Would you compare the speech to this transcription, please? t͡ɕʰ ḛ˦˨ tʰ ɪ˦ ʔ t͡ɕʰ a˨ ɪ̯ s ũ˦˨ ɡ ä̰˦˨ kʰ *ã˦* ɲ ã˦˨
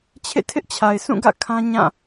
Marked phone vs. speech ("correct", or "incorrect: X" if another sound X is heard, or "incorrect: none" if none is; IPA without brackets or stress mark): correct